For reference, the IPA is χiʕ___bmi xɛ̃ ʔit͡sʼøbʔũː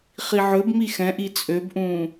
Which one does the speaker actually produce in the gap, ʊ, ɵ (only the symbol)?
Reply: ɵ